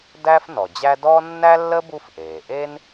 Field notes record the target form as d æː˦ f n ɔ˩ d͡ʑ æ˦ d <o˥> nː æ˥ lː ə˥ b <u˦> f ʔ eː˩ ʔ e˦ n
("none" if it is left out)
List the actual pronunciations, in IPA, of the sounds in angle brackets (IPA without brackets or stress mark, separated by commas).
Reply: ɔ˥, u˦